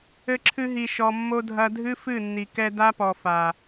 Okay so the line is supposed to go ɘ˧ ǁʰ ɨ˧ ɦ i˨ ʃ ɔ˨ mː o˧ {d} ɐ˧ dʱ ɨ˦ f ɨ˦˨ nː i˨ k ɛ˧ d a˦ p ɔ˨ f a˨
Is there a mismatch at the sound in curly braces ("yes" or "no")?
yes